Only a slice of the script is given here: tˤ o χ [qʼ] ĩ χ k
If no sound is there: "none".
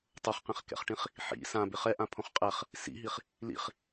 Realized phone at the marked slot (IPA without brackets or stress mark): q